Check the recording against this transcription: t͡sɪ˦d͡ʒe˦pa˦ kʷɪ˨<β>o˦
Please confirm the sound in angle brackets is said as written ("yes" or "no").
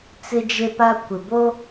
no